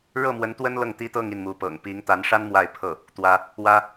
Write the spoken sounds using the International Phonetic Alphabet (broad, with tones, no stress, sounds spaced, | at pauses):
ɻ ɤ˥˩ m w ə˧˥ n t̪ w ə˥ n l ɤ˥˩ ŋ t̪ i˥ t̪ ɤ˥˧ ŋ i˥˩ n m u˧˥ p ɤ̰˨˩ ŋ p i˧˥ ŋ t̪ a˧˥ n ʂ a˥ n m w a˥˧ ɪ̯ pʰ ɤ˥˩ | t̪ w ä˥ | w ä˥